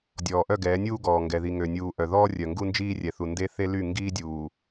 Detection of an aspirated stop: absent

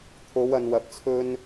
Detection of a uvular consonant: absent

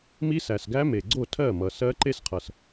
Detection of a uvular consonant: present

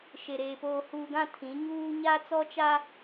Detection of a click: absent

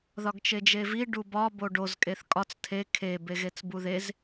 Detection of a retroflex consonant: present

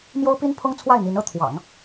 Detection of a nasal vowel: absent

